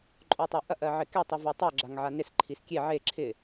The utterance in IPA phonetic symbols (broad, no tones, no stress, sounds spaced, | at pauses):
ǃʼ o tˤ e ʔ ɐ ʔ ɜ ʕ ɪ k e tˤ i v o tˤ o ɡ͡ǁ a ŋ ʕ a n ɪ s ǃʰ i s kʲ e ʕ e ǁʰ ɪ